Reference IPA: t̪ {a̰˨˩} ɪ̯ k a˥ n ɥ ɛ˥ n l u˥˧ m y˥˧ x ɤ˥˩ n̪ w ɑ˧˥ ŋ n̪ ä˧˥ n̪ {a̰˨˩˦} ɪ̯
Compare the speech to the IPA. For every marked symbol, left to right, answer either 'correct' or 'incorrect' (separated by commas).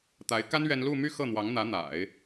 incorrect, correct